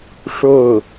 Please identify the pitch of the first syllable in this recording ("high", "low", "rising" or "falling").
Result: falling